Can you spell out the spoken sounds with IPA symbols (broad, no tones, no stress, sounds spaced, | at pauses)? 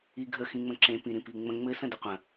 i ɡʱ ə x ĩ ŋ͡m ə̃ ǁ ẽ p ĩ ɾ ĩ p i ŋ͡m ə̃ ŋ͡m ɘ s ə̃ d ə qʷ ə̃